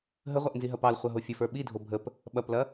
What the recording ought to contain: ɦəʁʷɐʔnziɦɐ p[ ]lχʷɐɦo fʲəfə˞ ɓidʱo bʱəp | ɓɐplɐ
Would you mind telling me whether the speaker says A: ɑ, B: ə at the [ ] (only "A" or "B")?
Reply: A